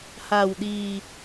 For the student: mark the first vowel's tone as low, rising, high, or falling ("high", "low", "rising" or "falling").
low